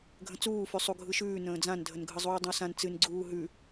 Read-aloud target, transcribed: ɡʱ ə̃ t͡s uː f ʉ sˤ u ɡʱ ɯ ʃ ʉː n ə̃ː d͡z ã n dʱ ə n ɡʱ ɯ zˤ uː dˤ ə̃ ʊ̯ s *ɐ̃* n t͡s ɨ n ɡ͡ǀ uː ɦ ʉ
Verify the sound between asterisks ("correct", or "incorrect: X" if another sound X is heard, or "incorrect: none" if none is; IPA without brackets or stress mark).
incorrect: ã